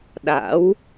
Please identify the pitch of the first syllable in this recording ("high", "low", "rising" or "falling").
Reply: rising